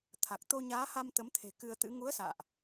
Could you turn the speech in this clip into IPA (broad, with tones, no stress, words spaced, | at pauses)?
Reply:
t̪ʰa˨˩k̚ t̪o˧ɲaː˨˦ha˧m t̪ə˨˦mt̪ʰe̤˨˩ kɨ˧ə̯t̪ɨ̰˧˥ ŋu˨˦ə̯sa̰ː˧˨ʔ